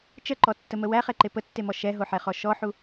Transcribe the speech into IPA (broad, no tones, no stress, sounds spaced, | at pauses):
t͡ʃ ə ǃ ɔ tː ə m ə w æ χ ɛ ǃ e p ə tː e m ɔ ʃ ɛ ɦ o ħ ɛ χ ɔ ʃ ɔ ħ u